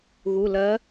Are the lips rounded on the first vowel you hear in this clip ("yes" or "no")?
yes